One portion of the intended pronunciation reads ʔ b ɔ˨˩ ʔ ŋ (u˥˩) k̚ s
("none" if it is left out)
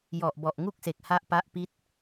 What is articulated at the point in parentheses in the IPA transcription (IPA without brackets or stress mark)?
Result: u˥˩